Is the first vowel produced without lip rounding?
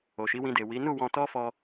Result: no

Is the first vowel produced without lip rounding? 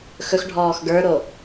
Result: no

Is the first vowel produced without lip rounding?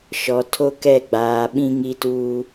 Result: no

